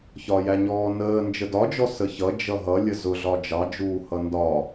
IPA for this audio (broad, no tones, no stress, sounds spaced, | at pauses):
ç ɒ j æ ɲ ɔː n əː n d͡ʒ ə d ɒ d͡ʒ ɔ s ə ç ʌ d͡ʒ ʌ ɦ ʌ lʲ ə z ʊ ɮ ɒ d͡ʒ ɑ d͡ʒ uː h ʌ n d ɒ